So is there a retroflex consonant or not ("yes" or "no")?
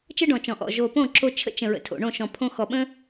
yes